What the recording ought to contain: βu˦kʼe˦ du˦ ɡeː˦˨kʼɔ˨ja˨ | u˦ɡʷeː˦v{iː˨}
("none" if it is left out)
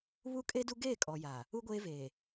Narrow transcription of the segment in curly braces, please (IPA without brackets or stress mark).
eː˨